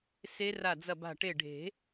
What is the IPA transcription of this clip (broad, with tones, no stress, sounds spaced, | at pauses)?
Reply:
s e˦˥ r a˧˩ d͡z ɐ˧˩ b a̤˧˩ ʈ e˧˩ ɖʱ e̤˨˩˦